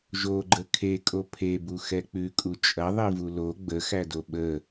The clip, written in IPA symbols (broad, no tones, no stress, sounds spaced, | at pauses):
ʒ o ɡ͡ǃ ə kʰ e kʼ o pʰ e b u x ɛ k͡p ʉ kʼ u t͡ʃʼ ɐ ðˤ i v u l o ɡ͡b ə x æ d o ɓ ə